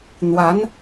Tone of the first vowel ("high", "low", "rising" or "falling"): rising